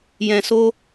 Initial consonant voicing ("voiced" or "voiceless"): voiced